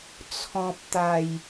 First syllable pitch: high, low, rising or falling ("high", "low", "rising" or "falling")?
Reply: low